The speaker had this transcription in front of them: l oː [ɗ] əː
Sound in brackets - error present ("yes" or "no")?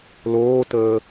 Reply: yes